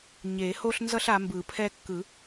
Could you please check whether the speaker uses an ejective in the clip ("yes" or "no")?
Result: no